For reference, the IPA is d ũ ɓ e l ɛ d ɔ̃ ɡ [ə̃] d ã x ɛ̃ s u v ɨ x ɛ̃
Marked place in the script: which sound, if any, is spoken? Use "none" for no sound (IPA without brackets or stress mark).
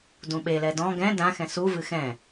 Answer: ɛ̃